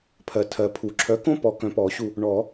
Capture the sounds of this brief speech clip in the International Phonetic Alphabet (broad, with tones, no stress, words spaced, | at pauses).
pʰɜ˨tʰɜ˨pʰu˨˩˦ ǁʰœ˨˥kõ˥ pɔ˨ kœ̃˨pɔ˨˩˦ɕu˨ | ɳɔ˨˩˦